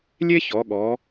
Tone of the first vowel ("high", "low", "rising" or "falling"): high